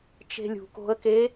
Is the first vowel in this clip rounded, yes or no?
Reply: no